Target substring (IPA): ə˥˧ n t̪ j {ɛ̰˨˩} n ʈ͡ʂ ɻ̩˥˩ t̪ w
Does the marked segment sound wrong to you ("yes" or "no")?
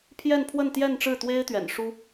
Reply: yes